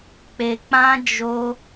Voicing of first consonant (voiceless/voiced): voiceless